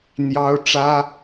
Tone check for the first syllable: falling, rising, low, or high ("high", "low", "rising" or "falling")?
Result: high